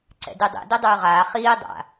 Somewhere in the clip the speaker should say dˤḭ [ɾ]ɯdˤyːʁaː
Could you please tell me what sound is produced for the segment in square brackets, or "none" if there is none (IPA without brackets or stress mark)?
d